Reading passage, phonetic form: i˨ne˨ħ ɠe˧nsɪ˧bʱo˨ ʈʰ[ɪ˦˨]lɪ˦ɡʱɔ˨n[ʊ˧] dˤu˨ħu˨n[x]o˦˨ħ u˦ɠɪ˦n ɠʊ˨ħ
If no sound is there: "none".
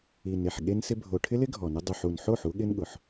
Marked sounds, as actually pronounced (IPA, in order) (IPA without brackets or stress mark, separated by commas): ɪ˦, ʊ˧, ħ